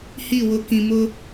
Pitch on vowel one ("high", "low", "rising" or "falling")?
falling